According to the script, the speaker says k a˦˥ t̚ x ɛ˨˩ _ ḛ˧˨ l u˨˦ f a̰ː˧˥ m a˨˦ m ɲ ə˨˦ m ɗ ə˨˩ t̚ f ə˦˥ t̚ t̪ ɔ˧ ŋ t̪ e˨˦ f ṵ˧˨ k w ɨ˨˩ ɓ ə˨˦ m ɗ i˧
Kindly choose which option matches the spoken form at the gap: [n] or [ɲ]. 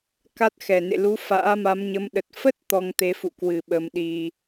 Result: n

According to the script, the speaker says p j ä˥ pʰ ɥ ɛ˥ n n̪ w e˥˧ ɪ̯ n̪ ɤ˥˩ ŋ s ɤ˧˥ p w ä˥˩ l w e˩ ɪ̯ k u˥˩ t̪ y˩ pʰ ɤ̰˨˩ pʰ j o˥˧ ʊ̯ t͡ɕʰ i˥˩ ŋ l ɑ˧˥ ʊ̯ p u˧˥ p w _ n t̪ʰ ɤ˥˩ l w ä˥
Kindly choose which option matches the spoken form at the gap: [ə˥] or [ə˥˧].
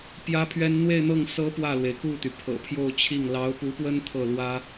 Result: ə˥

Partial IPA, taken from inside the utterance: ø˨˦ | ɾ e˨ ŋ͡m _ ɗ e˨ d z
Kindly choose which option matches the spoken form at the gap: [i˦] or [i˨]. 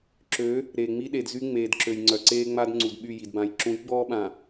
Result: i˦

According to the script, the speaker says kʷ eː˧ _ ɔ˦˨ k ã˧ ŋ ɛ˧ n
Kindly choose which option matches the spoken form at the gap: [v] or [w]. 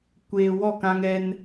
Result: w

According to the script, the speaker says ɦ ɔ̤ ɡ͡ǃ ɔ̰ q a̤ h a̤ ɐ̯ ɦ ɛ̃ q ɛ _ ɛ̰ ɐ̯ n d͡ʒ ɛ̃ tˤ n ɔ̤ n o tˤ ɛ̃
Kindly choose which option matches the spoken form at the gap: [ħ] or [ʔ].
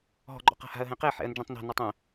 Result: ħ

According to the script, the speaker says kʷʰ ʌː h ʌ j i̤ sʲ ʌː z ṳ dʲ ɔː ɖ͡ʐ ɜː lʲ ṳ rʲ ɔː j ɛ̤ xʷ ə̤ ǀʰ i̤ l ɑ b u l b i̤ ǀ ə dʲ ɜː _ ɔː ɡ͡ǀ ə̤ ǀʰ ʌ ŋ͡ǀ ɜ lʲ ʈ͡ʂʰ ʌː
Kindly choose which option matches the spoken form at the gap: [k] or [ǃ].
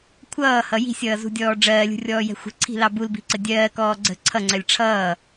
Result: k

